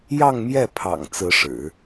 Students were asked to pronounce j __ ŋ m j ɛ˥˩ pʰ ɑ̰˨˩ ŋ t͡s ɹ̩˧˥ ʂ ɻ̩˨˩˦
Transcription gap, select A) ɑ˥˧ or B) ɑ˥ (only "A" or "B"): A